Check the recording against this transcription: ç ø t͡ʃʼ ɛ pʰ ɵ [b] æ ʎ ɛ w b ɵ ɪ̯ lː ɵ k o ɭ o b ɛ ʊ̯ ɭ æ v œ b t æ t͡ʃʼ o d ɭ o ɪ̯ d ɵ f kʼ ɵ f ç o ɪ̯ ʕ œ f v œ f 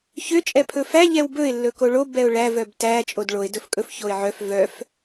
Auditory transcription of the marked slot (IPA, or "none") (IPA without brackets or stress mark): f